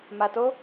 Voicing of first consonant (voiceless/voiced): voiced